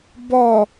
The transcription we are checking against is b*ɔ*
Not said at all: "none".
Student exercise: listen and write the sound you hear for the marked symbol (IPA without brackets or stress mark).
ɔ